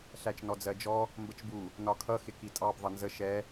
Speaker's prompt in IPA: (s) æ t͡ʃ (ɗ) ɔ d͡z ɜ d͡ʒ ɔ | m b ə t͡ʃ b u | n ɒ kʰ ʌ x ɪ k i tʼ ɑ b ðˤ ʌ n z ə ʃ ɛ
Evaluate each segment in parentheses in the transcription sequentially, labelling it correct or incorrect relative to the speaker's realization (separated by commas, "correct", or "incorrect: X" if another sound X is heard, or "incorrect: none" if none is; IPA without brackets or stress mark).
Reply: incorrect: ɬ, incorrect: n